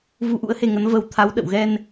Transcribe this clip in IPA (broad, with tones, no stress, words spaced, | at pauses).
vu˧ʔṵ˧˥ə̯he˧ŋə˨˦n və˧w t̪ʰa˨˦wɗə̰˧˨wɣɛ˧n